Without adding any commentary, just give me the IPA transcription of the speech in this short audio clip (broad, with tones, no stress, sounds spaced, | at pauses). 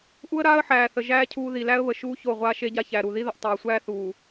ʔ u˦ ə̯ ɾ aː˦ ə̯ ħ æː˨ θ ə˨ ʒ æː˦ cʰ uː˦ ð i˨ l æ˦ ə̯ β ə˨ ʃ uː˦ ç o˦˨ ʁʷ aː˦ ʃ e˦ ɟ a˦ ç æ˨ ɾ u˨ ð i˦ ð ə˨ ʔ tˤ aː˨ sʷ æː˦ θ uː˨